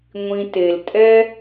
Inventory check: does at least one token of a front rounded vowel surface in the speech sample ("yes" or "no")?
no